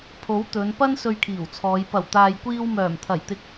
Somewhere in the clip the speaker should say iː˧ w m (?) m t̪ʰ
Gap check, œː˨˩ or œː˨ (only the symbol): œː˨˩